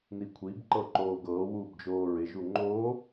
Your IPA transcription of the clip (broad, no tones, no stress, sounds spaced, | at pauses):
n i kʷʰ i b ǃ ɤ ǃ oː ɡ ɤː w uː b d͡ʒ oː ɹ ɪ ʒ u ŋ͡ǃ o